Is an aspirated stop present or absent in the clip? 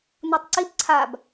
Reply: present